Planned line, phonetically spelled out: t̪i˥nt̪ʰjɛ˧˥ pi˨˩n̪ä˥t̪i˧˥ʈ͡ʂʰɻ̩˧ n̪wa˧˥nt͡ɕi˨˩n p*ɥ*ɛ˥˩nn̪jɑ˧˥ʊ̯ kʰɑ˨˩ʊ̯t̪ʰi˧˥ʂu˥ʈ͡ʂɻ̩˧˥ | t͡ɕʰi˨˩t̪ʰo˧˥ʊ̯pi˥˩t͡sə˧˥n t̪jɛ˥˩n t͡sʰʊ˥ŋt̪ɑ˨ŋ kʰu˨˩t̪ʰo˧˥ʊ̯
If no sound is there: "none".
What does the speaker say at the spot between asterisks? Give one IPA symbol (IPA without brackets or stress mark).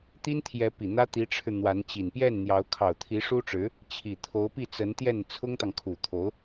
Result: j